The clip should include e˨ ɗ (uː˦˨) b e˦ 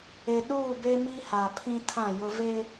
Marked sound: correct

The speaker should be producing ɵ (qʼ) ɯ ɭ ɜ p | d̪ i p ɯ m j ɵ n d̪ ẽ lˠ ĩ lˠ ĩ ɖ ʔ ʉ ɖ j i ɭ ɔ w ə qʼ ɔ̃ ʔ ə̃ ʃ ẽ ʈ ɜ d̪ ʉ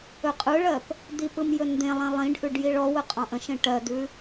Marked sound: correct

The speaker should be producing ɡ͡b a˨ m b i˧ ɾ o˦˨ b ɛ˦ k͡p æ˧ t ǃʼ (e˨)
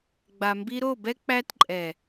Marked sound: incorrect: ɛ˨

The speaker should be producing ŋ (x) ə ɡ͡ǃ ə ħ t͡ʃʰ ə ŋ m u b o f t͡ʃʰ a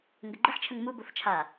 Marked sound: incorrect: ɡ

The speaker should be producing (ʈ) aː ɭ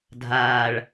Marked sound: incorrect: dʱ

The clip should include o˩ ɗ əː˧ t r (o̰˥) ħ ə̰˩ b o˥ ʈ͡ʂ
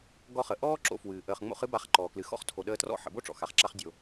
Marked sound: incorrect: ɔ̰˥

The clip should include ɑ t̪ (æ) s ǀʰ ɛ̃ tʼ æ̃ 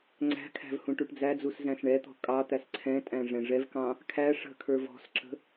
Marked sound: correct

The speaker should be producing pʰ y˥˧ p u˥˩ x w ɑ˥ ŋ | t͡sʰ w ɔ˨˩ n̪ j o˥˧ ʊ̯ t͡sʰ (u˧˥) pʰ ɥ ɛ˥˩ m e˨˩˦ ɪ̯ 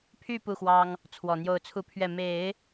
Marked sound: incorrect: u˥˧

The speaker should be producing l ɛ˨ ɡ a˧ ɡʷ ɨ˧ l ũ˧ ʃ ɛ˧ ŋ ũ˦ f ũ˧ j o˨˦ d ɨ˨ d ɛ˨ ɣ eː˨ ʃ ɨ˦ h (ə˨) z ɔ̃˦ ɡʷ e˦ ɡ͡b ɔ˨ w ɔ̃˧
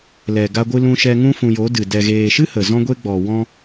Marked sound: correct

